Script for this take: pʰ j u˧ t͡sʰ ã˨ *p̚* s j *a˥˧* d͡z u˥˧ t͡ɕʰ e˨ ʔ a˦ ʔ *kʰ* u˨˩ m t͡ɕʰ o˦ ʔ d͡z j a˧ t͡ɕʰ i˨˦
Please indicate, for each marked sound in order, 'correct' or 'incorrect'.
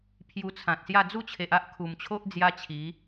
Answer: incorrect, correct, correct

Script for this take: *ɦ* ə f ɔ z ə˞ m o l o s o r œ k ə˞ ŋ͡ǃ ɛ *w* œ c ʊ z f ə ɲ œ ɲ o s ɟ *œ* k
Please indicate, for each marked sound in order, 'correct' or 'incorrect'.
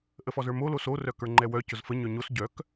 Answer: incorrect, correct, correct

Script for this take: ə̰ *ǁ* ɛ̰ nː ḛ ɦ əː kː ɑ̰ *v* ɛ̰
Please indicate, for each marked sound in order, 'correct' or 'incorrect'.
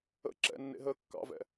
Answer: correct, correct

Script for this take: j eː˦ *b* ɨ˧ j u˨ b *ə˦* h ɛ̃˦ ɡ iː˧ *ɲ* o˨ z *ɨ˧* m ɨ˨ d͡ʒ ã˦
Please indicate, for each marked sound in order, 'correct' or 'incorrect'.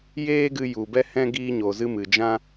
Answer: incorrect, incorrect, correct, correct

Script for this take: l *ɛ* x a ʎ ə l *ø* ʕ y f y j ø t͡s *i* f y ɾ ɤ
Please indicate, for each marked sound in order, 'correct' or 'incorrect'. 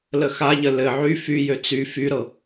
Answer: incorrect, incorrect, incorrect

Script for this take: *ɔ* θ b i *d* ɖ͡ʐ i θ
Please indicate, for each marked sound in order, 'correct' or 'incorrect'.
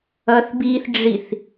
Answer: incorrect, incorrect

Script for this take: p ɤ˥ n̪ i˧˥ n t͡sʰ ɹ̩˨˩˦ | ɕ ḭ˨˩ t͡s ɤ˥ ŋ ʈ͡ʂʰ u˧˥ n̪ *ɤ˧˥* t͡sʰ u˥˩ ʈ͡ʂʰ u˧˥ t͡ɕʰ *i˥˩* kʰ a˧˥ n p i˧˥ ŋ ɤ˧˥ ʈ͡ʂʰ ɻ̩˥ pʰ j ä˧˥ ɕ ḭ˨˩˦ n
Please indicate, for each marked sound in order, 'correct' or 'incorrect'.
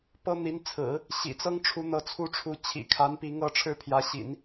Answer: correct, incorrect

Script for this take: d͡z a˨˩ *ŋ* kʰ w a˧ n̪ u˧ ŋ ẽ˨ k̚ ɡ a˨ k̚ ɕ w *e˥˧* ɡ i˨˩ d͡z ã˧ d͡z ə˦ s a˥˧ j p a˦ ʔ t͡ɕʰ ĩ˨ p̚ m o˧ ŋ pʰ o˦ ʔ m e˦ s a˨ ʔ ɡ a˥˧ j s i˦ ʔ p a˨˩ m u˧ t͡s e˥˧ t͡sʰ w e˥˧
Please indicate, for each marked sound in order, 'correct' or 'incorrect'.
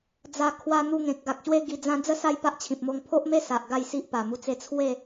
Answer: incorrect, incorrect

